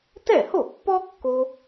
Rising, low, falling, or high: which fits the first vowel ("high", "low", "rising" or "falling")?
falling